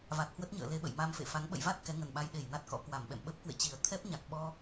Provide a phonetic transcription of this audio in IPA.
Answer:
v a˨˩ t̚ h w ə˦˥ t̚ ɲ ə̰ː˧˨ l e˧ ɓ ə̰˧˨ j m a˧ m f ḛ˧˨ f a˨˦ ŋ ɓ ə̰˧˨ j v a˦˥ t̚ k ɛ˨˦ ŋ ə˨˩ n ɓ a˧ j ɗ e˧˩ j n a˦˥ t̚ k ɔ̰˧˥ k w a˧˩ m ɓ ɛ̰˧˨ m ɓ ə˦˥ p̚ k w ḛ˧˨ t͡ɕ i˨˩ ə̯ t̪ʰ ɛ˦˥ p̚ ɲ a˨˩ k̚ ɓ ɔ˧

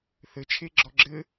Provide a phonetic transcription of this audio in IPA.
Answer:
θ ɘ t͡ʃʰ e ɡ͡ǁ ɔ ɡ͡ǁ ɘ

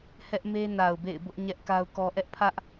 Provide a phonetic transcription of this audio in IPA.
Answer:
h ɛ˦ ʔ m e˦ n a˨ ʊ̯ b ḛ˦˨ ɪ̯ b ʊ˦ ʔ ɲ ɛ˦ ʔ k a˦ ʊ̯ k ɔ˦ ʔ ɛ˦ ʔ pʰ ä˦ ʔ

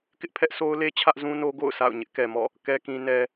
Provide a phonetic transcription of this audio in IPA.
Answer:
k ɪ˦ ʔ pʰ ɛ˦ ʔ sʰ o˦ ʊ̯ l e˦ t͡ɕʰ ä˦ ʔ z ũ˦ n o˦ ɡ o̰˦˨ ʊ̯ sʰ a̰˦˨ ʊ̯ ɲ ɪ˦ ʔ k ɛ˨ m ɔ̰˦˨ | k ɛ˨ k ĩ˨ n ɛ˨

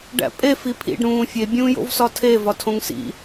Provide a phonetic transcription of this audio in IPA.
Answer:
ɖ æ̰ pʼ e f i pʰ ḭ ɖ ɾ ũː fʲ e bʲ ũː j o̰ v s ɒ tʰ e v ɒ tʰ õ ŋ s ḭ

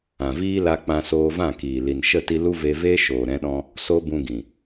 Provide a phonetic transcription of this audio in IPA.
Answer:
ã˨ v iː˦ l a˧ k͡p ã˧ s oː˧ v ã˦˨ k iː˨ l i˨ n ʃ ə˦˨ t i˧ l u˦ v e˧ v eː˦ ʃ oː˨ ɾ ɛ̃˧ ɗ ɔ̃˧ | s o˦ b ũ˧ ɡ ĩ˨

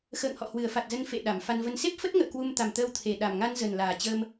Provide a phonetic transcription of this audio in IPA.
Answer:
x ə̰ː˧˨ ŋ h ɔ̰˧˨ h w ɨ˧˩ ə̯ f a˨˩ t̚ z ə˧ n f ḛ˧˨ ɗ a˧˩ m f a˧ n v ə˧ n s e˦˥ p̚ f ə˦˥ t̚ ŋ ə̰ː˧˨ k w u˧ m t̪ a˨˩ m t̪ əː˧ w t̪ʰ e˨˩ ɗ a˨˩ m ŋ a˧ n z ə˨˩ n l aː˨˩ t͡ɕ ə˧ m

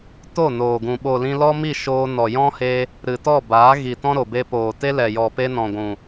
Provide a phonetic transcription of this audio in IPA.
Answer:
t o˦˨ n oː˨ ɡ ũ˨ ɓ o˨ l ĩ˧ l ɔ˦ m i˦˨ ʃ oː˧ n ɔ˨ j ɔ̃˦ h e˧ | ɾ ɨ˨ t ɔ˦˨ b aː˨˦ ɣ i˨ t ɔ̃˦ ɾ o˨ b e˧ p oː˨ t e˦ l ɛ˨ j ɔ˨ p e˦ n ɔ̃˨ ɡʷ ũ˨

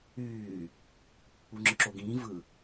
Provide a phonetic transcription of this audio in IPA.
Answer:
yː | u ŋ͡ǁ ɯ ǁ o ɡ ĩː v ɯ

